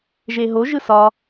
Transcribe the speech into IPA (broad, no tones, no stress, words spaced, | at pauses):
ʒeɦo ʒɯsɒ